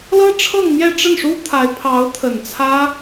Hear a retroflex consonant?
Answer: yes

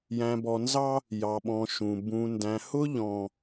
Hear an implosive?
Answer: yes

